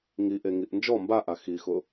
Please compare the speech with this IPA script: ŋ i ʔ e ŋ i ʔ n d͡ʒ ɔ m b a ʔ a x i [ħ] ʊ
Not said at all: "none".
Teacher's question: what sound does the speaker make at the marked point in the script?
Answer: x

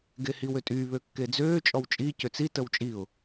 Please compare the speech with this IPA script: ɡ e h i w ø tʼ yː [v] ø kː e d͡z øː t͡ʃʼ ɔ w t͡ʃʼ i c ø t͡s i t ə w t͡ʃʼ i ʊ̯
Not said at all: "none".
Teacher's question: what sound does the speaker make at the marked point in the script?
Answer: β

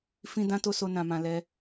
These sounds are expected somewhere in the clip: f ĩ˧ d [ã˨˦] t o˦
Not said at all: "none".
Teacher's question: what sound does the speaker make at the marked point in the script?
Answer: ã˦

